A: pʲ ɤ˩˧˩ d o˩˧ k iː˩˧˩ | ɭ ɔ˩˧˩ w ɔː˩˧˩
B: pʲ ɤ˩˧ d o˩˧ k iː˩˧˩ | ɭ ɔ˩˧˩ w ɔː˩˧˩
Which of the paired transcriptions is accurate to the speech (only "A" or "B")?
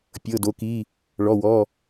A